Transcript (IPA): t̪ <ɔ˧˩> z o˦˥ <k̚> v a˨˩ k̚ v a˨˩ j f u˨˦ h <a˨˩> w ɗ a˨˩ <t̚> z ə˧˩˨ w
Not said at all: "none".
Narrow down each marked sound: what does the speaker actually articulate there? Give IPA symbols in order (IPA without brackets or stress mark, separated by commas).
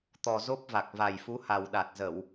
ɔ˨˩, p̚, a˨˩, t̚